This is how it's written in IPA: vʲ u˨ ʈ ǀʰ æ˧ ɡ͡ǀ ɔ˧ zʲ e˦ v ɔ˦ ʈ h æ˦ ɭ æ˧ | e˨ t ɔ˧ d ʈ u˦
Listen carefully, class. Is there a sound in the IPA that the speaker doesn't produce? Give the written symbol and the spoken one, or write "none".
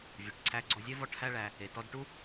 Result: none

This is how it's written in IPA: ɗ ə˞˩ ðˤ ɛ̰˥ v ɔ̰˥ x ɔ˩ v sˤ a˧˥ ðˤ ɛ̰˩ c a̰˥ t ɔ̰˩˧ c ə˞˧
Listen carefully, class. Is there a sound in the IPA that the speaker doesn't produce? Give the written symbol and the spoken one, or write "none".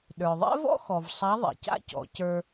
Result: t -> c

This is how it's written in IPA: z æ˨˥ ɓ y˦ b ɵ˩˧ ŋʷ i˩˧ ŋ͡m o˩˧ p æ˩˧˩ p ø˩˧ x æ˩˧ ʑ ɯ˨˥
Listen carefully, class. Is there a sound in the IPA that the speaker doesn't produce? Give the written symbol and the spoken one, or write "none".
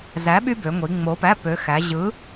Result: ɵ˩˧ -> ø˩˧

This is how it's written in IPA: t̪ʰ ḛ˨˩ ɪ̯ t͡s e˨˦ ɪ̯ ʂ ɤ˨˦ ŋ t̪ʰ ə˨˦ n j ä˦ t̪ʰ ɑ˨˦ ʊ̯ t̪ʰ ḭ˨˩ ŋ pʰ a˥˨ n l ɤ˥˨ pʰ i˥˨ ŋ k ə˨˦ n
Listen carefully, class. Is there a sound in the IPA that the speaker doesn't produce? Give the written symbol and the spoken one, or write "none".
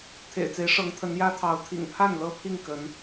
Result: none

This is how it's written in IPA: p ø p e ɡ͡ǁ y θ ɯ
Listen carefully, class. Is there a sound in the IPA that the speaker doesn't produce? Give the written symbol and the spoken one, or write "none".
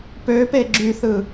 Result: none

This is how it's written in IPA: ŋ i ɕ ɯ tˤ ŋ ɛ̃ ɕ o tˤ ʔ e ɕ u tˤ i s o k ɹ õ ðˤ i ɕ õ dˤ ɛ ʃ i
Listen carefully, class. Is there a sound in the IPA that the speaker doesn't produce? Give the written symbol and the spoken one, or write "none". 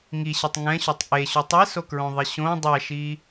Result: none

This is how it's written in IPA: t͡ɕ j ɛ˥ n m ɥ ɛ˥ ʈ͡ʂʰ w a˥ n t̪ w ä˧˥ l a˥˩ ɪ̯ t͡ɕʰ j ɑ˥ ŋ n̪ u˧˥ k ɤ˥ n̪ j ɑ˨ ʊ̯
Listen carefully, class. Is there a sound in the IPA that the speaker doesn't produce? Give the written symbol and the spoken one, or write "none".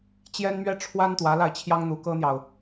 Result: none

